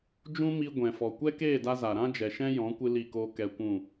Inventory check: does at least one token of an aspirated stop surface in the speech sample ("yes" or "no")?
no